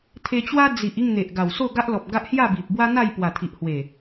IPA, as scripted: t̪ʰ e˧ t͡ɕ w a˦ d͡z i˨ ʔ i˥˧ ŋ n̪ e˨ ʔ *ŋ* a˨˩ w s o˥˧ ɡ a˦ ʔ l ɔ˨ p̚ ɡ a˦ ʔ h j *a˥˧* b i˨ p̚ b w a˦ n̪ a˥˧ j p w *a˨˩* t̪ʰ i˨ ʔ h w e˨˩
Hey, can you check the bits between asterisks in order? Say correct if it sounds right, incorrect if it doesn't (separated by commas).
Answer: incorrect, correct, correct